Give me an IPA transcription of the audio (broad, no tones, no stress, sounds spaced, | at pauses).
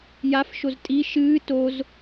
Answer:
j a f ʃ o z tʼ i ʃ ɨː t o z